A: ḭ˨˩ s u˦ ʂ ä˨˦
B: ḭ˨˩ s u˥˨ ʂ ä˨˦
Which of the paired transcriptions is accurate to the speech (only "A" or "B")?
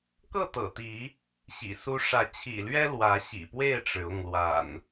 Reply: A